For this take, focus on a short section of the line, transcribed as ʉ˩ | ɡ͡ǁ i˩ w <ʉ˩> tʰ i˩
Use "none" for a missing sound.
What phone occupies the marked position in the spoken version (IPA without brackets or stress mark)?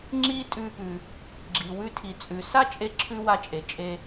ʉ˧